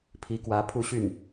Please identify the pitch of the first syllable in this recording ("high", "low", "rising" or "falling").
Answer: rising